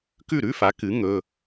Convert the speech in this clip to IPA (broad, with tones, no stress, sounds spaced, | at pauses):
k ʉ˥˩ ɾ ʉ˧˥˧ f a˩˥ k ɨ˩˥ ŋ ɵ˩˧˩